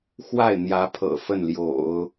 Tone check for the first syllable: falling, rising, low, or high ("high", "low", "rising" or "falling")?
falling